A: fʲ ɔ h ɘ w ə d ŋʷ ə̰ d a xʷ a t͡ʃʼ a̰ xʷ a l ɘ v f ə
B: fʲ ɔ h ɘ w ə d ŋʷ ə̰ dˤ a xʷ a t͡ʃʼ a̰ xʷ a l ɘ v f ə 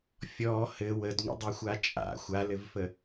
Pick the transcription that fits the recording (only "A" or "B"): B